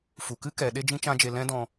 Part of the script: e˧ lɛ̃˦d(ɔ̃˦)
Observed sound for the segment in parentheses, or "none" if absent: ɔ̃˧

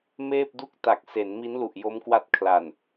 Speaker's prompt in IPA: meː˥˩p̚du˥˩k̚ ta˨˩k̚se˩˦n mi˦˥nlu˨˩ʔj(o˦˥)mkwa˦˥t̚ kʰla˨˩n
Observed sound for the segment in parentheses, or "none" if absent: o˦˥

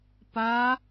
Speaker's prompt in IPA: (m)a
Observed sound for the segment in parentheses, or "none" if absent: p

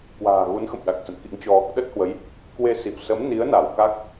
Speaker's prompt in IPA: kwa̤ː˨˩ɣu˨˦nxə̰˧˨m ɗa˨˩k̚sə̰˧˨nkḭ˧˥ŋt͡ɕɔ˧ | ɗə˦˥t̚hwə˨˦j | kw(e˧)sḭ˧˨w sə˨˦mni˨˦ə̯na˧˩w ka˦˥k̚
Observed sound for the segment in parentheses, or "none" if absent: e˧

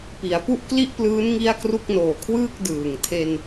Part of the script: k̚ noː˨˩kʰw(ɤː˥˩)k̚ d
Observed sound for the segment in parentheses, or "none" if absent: ɯː˥˩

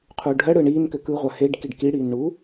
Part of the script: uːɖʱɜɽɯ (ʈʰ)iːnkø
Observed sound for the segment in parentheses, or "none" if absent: ɳ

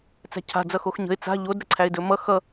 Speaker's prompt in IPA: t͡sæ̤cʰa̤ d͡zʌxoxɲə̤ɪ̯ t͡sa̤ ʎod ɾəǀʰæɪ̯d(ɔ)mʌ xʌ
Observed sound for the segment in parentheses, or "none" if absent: ɵ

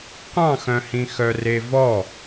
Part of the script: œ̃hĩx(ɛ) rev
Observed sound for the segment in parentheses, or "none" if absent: œ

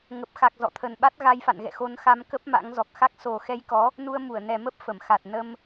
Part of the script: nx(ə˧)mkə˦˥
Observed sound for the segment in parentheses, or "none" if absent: a˧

